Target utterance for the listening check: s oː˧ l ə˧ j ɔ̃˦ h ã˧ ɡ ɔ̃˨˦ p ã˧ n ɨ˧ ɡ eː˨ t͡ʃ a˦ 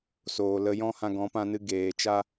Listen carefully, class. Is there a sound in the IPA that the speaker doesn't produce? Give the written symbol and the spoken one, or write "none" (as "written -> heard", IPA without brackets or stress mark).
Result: oː˧ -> oː˨